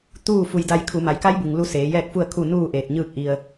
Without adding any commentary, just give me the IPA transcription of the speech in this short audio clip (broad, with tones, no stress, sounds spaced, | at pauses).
t̪ uː˥˨ f u˧ j d a˧ j kʰ u˩˧ m a˩˧ j k a˧˥ j b u˩ ŋ l u˧˥ s eː˩˧ j ɛː˥˨ k̚ f u˥˨ ə̯ kʰ u˥˨ n uː˥˨ ʔ eː˧˩ t̚ ɲ ɯː˥˨ k̚ ʔ i˧ ə̯